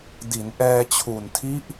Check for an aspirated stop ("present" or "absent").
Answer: present